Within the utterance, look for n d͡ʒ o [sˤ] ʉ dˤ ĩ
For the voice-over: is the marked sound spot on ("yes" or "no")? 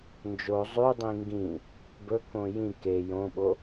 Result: no